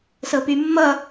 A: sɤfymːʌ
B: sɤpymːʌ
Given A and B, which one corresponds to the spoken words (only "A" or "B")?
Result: B